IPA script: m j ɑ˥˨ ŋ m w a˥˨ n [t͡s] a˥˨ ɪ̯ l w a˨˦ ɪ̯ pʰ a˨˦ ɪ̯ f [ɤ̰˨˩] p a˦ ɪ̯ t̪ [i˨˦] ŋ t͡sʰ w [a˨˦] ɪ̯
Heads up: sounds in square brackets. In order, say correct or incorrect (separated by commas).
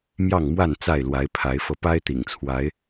correct, incorrect, incorrect, correct